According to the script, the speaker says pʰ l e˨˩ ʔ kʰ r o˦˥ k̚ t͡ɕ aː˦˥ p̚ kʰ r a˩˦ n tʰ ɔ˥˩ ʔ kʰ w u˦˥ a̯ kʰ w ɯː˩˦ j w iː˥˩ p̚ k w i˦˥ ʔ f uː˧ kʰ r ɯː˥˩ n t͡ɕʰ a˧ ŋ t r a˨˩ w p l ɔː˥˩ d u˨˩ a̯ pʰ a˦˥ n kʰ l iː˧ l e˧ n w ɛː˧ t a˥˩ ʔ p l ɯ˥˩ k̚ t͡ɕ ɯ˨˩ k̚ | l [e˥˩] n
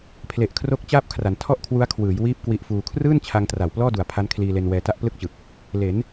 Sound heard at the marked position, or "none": e˩˦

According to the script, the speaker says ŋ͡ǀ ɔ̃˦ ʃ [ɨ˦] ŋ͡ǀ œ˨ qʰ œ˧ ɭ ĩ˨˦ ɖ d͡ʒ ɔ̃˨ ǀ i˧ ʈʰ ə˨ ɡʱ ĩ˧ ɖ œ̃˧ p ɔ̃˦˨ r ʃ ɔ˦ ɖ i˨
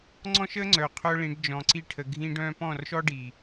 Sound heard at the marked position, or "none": ə˦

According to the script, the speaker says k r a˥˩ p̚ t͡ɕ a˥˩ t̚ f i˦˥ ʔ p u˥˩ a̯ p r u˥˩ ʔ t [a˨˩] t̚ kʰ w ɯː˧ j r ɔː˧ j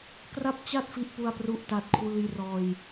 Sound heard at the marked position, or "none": a˥˩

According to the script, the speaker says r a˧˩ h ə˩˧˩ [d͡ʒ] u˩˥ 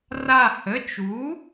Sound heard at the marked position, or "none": t͡ʃ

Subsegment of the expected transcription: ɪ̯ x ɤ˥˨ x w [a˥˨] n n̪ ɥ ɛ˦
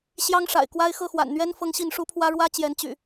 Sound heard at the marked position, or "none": a̰˨˩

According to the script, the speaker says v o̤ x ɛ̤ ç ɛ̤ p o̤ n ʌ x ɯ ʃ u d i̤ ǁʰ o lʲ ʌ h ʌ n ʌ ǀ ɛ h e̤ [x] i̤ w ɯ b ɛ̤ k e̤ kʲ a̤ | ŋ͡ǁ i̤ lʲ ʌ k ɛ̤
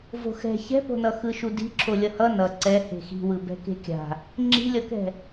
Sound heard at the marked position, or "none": x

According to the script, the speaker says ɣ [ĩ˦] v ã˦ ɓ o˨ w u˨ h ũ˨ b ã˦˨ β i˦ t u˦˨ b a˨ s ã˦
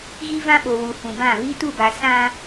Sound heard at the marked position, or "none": i˦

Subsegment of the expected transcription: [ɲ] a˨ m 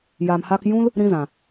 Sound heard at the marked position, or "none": j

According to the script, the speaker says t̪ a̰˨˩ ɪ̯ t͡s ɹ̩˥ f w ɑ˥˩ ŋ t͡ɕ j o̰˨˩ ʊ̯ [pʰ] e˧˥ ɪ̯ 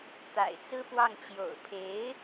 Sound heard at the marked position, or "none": pʰ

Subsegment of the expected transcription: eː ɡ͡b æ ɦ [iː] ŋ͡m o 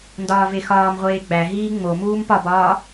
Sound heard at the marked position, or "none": iː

